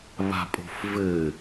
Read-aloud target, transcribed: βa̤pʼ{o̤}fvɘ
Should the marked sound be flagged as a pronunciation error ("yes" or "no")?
no